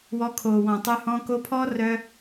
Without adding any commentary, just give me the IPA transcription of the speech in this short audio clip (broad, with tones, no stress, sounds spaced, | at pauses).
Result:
w ɔ˧ kʰ o˨ w ɔ̃˨ tˤ ʏ˧ h ɔ̃˧ k o˧ pʰ ɔ˦ r œ˧